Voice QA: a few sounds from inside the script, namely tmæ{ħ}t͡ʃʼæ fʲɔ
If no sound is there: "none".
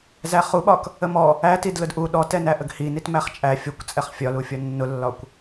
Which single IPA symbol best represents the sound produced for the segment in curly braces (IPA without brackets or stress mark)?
χ